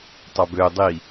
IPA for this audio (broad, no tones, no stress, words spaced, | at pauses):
tˤɑbø dˤi